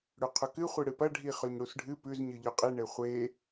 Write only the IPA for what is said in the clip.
ɽ ʉ qʰ ɵ k ɨ χʷ i ɽ ɨ p ɐ ɖʱ i χ ɵ ɲ ɽ u s ɖʱ ɨ p ʉ z ɲ ɨ ʎ ɵ qʼ i ɳ e χʷ e

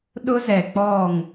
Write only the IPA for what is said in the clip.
ɗ ʊ˦ z ɛ˨ k͡p ɔ˦˨ ŋ

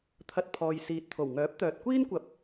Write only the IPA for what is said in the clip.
t̪ʰ ɐ˧ t̚ pʰ ɔː˨ j s iː˨ t̚ t̪ʰ o˨˩ w ŋ œː˨˥ p̚ t̪ œː˨ t̚ kʷ iː˥ n kʷ ɐ˨ p̚

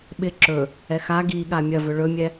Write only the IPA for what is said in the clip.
ɓ ɪ ǁ ɵ | ɛ x a ɡ i ɠ a mʲ ɐ v ɵ ɭ ɵ mʲ ɛ

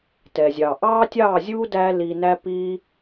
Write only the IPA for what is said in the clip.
t ɛ˨ zʲ ɑ˨ ʔ ɑ˦ tʲ ɑ˦˨ zʲ u˦ d æ˦ l i˧ n æ˦ p i˦

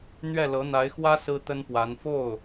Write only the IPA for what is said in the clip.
n̪ ɥ ɛ˥˩ l ɤ˧˥ n̪ a˧˥ ɪ̯ x w ä˥ s ɹ̩˥ t̪ ə˥ n p w a˧˥ n f o˥˩ ʊ̯

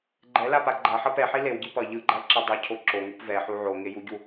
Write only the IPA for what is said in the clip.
ɡ͡ǃ ɛ l a p a ɡ͡ǃ a ħ ʌ p ɛ ħ i l e w ɟ i p ʌ ʎ ɯ ɡ͡ǃ a l ǁ ɛ dˤ i cʰ o ǁ o ŋ u p v ɛ ħ u ʕ o ŋ e j u ɟ u

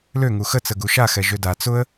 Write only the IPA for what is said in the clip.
l ø ŋ u x ə t͡s ə ɡ u ʃ a x ɛ ʒ ø d a t͡s ʊ ə̯

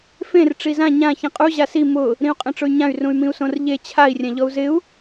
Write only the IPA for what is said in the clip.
f ẽ r ʈ͡ʂ i z ã ɲ ã ç ĩ qʼ u ʑ a s i m ʊ | ɾ ĩ u̯ qʼ ẽ ʈ͡ʂ ʊ y̯ ɲ ã y̯ r ũ y̯ m ĩ u̯ s õ r ʎ e t͡ɕʰ a i̯ rʲ ã ʎ ɔ u̯ z ɪ u̯

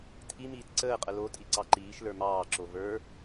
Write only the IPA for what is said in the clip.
tʰ i m iː t ǀ əː qʼ ə l o tʼ i ǀ ɑ ǃ iː ʃ l ə˞ m ɑː ǁ o v ə˞

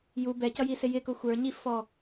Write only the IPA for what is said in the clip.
j u b ɛ c ʌ j i s ɪ j ɪ k ʊ xʷ ə˞ ɲ i f ɔ

